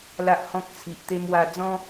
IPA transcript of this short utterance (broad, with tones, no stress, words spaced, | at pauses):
la˦ʔhɔ̃˦k̚t͡sʰi˨ʔ t̪e˧mwa˧d͡zɔ̃˦